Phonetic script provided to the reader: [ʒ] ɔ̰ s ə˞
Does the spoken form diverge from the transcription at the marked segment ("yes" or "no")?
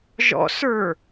no